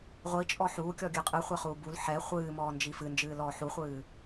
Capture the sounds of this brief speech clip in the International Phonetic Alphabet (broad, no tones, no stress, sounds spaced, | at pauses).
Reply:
ʁʷ i t͡ʃʼ ɔ ħ uː kʲ ɔ ɡʲ ɨ qʼ ɨ χʷ ɛ χ uː b u l ħ ɛ χʷ ɨː m ɔː n d͡ʒ i f ɨ n d͡ʒ ɨː l ɔː ħ u χʷ ɨː